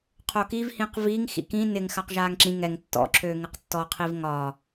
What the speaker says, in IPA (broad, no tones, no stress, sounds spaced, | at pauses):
qʰ o k i v h ĩ q v i ŋ x ḭ k ĩ n ɪ ŋ x a q ʒ aː ŋ ǁ ĩ ŋ ɛ ŋ tː ɔ̰ ǁʰ øː ŋ ɪ q tː ɔ qʰ i v ŋ ɒ